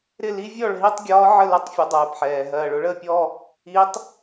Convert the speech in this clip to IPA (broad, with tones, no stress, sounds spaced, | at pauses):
ɾ ɪ˥˩ l i˧˥ vʲ ɔ˥˩ ɭ ɦ i˥˧ tˤ ɡʲ ɒː˧˥ ʕ ə˥˩ l ə˧˥ tˤ fʲ ʊ˩˥ dˤ ɜː˨˩ p ħ ɛː˨˩ ɦ ɜː˨˩ ɭ ʊ˩˥ ɭ əː˥˩ pʲ ɔ˥˧ | i˧˥ tˤ